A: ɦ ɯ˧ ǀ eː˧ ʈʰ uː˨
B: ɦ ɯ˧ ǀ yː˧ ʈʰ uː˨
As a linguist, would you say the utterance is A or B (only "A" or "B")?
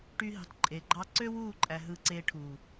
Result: A